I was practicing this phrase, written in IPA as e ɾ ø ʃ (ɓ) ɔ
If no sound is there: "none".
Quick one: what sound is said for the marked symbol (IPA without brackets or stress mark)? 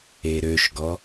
ɡ